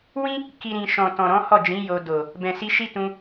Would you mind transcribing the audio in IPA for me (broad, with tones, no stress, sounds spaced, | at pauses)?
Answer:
w ĩ˦ | k i˦ ɾ ĩ˧ ʃ ɔ̃˨ t ɔ̃˨ ɾ ɔ̃˨˦ h ɔ˦˨ d͡ʒ ĩ˨˦ j o˧ d o˨ | b ɛ̃˨ s i˧ ʃ i˦ t ũ˧